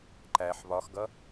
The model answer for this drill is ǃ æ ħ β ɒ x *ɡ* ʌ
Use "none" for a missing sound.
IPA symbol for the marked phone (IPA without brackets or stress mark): ɡ